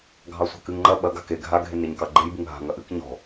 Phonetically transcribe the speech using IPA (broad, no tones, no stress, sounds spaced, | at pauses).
ɡʱ ɑ sʷ a̤ k ɨ ŋ ŋ͡ǃ ɐ ɓ ɐ ɡ a̤ k e ɡʱ a ɡʱ e n ɾ e ɲ k ɑ ɡ͡ǃ e j b ɨ ŋ ɦ a̤ ŋ ɐ ʔ ɨ k ɲ ɔ̤